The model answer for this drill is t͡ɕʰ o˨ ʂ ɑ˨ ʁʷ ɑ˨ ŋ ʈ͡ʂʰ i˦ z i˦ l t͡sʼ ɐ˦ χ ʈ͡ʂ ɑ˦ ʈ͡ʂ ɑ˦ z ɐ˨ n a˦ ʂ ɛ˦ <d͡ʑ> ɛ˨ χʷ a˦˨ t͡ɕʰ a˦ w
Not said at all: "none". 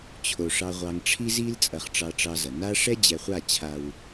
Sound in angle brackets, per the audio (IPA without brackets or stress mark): d͡ʑ